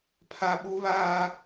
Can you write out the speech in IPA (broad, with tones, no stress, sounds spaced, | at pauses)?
pʰ a˦ ɓ u˦ β aː˦